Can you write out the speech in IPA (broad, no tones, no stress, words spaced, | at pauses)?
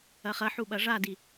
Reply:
ɐχɐħu ɓɐʐadi